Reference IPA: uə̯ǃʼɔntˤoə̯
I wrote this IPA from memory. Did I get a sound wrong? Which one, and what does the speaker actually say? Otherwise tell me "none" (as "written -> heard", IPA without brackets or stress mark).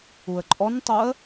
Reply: none